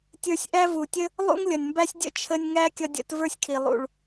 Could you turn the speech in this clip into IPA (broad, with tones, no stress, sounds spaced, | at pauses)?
tʲ ə˞˧ sʲ ʔ æ˦ v u˨ tʲ ə˦ | lˠ ṵ˦ ŋ lʲ ʌ˨ nʲ m b æ˦ sʲ dʲ ə̰˦ t͡ʃʰ ə˧ nʲ ŋ æ˦ kʲ ʌ˧ dʲ ə̰˧ t v ə˞˦ sʲ kʰ i˨ lˠ ṵ˨ ɭ